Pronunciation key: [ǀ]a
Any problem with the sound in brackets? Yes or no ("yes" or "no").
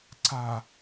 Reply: no